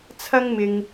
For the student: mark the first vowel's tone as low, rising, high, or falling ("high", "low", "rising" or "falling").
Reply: high